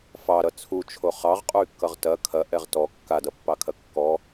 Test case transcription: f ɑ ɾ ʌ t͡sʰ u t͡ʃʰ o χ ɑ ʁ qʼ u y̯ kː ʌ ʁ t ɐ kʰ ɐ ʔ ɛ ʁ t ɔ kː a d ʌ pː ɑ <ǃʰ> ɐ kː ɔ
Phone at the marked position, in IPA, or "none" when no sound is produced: kʰ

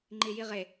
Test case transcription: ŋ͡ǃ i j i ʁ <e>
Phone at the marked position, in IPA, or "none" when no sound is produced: e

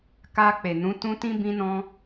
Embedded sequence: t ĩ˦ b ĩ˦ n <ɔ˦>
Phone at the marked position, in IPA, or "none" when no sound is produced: ɔ̃˦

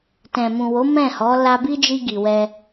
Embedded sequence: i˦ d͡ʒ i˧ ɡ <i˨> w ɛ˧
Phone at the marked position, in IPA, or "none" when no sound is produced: i˨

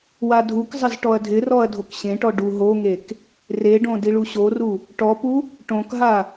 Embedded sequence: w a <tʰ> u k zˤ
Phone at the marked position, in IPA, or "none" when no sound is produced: dʱ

